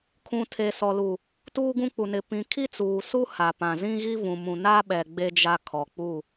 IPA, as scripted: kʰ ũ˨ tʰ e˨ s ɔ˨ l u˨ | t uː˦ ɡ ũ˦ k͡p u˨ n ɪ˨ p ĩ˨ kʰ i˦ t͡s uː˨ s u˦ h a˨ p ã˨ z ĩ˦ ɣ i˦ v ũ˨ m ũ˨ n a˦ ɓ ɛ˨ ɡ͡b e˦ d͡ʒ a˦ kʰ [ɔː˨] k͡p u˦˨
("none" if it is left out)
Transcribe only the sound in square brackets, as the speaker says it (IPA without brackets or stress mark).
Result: ɔ˨